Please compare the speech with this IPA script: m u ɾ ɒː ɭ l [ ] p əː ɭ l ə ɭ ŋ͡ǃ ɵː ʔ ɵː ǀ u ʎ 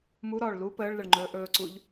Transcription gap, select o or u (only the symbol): u